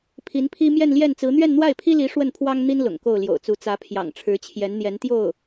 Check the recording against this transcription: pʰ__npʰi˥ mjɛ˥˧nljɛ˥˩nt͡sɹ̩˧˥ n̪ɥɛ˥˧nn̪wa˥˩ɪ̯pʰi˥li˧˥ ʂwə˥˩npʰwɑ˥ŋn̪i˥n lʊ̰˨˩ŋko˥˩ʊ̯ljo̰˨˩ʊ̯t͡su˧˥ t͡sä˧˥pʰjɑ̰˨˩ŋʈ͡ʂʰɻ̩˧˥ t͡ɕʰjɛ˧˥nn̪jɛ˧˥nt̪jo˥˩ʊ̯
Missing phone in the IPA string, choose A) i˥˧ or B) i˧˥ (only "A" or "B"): B